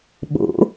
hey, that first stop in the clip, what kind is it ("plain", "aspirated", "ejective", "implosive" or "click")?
implosive